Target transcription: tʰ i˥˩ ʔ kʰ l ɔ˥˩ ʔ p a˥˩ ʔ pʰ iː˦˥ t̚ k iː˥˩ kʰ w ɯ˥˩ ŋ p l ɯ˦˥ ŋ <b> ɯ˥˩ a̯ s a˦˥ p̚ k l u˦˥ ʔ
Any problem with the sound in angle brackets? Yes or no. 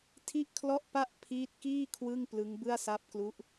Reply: no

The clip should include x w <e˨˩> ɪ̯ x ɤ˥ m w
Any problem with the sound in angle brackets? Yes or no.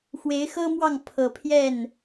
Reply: yes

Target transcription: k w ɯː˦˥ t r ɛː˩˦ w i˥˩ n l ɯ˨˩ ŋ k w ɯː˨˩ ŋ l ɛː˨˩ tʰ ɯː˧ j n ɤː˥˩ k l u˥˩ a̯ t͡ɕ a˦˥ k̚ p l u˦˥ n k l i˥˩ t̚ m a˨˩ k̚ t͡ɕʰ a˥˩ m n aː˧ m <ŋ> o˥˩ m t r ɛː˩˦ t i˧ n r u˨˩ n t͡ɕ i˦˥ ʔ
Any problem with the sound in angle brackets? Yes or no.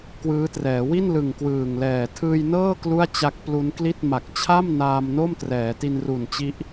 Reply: yes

